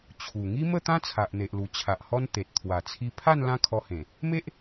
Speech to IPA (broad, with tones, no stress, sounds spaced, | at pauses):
t͡ɕʰ u˨˩ ŋ i˦ m ə˥˧ t̪ ã˦ t͡sʰ a˨ ʔ n̪ e˨ ʔ l u˨˩ t͡ɕʰ a˨ ʔ h ɔ˦ n t̪ e˨ t̚ t̪ʰ w a˨˩ t͡sʰ i˧ pʰ a˥˧ n l ã˦ kʰ ɔ˧ h ẽ˨˩ | m e˦ ʔ